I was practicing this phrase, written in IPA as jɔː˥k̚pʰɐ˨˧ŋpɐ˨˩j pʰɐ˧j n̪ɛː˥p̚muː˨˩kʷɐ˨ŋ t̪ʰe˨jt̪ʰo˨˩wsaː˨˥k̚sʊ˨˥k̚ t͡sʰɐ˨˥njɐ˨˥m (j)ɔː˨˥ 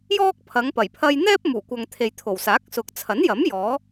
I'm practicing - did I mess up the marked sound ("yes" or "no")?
no